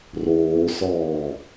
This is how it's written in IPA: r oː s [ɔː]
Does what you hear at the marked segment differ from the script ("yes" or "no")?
no